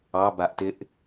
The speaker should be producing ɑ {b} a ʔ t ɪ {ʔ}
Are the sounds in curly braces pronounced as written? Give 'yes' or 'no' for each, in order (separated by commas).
yes, yes